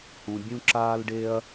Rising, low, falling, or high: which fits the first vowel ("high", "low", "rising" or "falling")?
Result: low